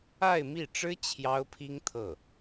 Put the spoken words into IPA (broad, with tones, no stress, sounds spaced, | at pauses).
a˥˧ ɪ̯ m i˥˩ ʈ͡ʂ ɻ̩˥ t͡ɕʰ j ɑ˥ ʊ̯ pʰ i˥ ŋ t̪ʰ ɤ˥˩